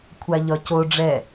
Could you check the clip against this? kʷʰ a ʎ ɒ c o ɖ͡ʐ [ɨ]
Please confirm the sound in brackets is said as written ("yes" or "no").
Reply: no